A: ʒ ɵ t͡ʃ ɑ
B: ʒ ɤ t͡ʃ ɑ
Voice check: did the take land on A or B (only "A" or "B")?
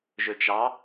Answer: A